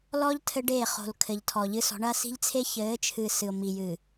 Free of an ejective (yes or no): yes